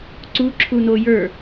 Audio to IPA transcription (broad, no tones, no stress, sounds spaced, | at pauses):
ǀ u ǁʰ u n o j ə˞